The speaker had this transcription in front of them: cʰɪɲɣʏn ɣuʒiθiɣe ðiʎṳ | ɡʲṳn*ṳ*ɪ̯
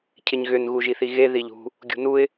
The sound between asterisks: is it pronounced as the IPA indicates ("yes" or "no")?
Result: no